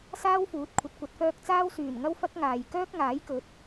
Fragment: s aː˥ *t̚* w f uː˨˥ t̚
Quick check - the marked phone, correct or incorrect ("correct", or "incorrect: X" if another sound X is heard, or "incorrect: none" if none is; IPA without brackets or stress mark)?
incorrect: none